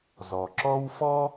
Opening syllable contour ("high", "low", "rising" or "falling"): low